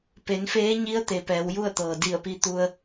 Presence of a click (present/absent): absent